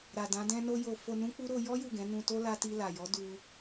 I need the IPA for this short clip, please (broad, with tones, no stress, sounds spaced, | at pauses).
ɾ a˨ d ã˨˦ d ɛ̃˦ n o˦ j o˧ f o˧ n ũ˦ k͡p u˦ ɾ o˧ j ɔ˦ j u˦˨ ɡ ɛ̃˨˦ n ũ˧ t o˦ l a˧ t i˧ l a˨ j ɔ˨˦ d u˧